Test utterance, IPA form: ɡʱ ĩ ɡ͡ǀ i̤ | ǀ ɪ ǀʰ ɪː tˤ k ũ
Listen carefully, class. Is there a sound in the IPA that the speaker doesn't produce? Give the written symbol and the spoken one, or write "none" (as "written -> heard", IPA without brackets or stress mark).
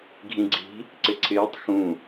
k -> x